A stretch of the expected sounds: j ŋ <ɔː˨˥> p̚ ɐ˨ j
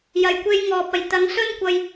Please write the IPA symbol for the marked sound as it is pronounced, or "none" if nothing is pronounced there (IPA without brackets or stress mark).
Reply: ɔː˨